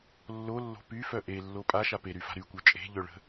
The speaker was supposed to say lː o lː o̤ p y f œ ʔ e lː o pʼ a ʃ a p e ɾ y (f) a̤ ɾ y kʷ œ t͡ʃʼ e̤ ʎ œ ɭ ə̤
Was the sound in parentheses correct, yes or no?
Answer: yes